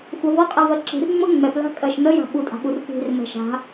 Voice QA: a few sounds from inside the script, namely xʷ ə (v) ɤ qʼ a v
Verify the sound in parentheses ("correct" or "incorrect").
correct